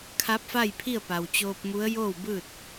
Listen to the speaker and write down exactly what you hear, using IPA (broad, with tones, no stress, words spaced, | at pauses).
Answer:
kʰa˧˥p̚fa˥˨jpʰi˥˨ə̯ pa˩wt͡ɕoː˧p̚mu˧˥ə̯ joː˥˨wbɯː˥˨t̚